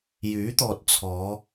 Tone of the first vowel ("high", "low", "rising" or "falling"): rising